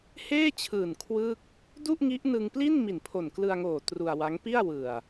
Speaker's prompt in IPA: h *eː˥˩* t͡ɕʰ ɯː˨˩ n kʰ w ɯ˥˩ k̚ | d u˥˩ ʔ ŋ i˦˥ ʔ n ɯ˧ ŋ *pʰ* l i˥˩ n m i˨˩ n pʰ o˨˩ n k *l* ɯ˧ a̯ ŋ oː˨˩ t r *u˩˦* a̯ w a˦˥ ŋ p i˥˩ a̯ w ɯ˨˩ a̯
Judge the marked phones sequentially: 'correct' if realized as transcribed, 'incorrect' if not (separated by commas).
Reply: correct, incorrect, correct, incorrect